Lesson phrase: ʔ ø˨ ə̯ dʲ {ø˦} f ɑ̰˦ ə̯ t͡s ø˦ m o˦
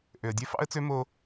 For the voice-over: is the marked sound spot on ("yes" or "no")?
yes